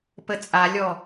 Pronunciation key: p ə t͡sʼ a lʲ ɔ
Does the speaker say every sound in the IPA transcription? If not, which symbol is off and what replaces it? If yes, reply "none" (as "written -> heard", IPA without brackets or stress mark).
none